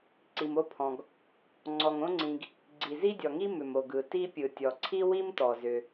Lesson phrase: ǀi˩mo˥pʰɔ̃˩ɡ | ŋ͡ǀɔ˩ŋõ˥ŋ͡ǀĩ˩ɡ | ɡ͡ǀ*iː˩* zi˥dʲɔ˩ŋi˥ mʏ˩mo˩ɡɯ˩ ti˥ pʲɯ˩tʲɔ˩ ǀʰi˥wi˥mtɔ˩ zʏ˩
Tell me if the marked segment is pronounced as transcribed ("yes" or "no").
no